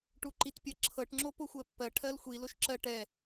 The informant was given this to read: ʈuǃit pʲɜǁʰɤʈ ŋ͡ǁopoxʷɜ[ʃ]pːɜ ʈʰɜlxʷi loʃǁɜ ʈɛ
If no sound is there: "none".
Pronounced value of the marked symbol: none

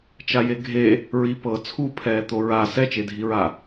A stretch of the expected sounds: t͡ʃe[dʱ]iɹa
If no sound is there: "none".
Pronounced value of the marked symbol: dʱ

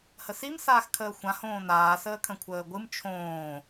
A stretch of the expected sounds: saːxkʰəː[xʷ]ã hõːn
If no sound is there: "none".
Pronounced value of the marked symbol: xʷ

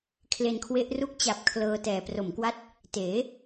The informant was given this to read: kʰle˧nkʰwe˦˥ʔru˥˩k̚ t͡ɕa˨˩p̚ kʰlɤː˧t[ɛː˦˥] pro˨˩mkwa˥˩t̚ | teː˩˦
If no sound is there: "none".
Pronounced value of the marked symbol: ɛː˨˩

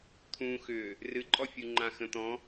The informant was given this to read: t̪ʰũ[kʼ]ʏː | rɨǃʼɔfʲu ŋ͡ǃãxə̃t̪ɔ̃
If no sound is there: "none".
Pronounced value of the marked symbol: x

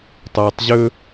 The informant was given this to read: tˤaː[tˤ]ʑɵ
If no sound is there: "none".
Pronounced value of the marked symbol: tˤ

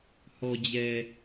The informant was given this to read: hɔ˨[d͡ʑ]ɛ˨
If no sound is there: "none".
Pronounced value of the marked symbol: d͡ʑ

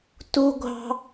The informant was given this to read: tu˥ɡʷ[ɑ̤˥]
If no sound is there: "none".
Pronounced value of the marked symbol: ɑ̤˥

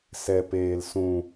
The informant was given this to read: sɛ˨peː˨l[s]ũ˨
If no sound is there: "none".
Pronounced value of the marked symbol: s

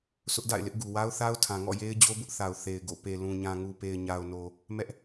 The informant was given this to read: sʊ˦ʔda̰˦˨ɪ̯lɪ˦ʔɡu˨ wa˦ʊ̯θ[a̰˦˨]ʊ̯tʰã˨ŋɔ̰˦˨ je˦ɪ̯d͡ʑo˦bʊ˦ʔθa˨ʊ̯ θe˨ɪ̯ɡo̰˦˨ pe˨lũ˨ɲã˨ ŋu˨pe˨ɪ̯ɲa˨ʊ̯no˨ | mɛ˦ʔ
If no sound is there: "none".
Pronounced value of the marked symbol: a˦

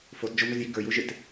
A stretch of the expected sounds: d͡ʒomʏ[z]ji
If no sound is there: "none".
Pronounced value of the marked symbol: z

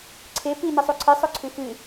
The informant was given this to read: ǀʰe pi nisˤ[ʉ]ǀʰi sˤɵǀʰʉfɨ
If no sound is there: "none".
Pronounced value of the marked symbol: u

